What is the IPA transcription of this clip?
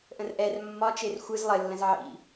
ʔə̃rʔɛr mːɒ t͡ʃerxʷɯz lˠɘ lːə̃zʕḭ

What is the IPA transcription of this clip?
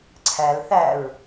ǀʰæl θæɹ

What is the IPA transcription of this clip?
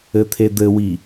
ɘt̪ʰed̪ɘwi

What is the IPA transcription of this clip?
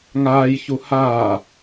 ŋaːjçu haː

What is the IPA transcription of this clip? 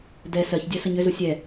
dɛ sɜçdʲɜ səɲʏzu sʲɛ

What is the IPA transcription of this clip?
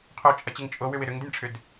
qʰot͡ʃʼɐt͡ɕɪŋ t͡ʃʼowʏwɪ ɾʏŋdɪnʲʈ͡ʂʰʏd

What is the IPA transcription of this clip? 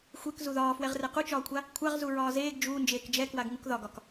xʷek zuðɒːfwɛʁ rɛqut͡ʃɒːkʷʰa | kʷʰaʁzu ɹɒːzeːɡ d͡ʒuːnd͡ʒeːk d͡ʒɛkwaɡŋuk ðɒɡɒk

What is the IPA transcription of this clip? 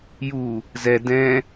ju | zɛ dɛ̃

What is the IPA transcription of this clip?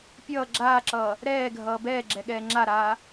pʲʌː ɡ͡ǁaːǁʌː | ɾɛːɡʱʌː bɛːɡ͡ǁɛɠɛː ŋ͡ǁaɾaː

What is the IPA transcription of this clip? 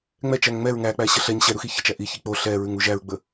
ŋ͡mɛt͡ʃæŋ ŋ͡mɛɹ ŋæk͡pæɕə ɬɛɲ ɕɛɾuxi çət͡ʃæ ʔiçi k͡po ɬɛɹʉŋu ʒæɹɡ͡bə

